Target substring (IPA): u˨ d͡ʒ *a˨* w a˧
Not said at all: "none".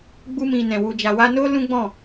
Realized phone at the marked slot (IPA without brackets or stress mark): a˨